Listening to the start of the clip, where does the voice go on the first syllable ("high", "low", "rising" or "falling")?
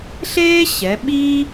high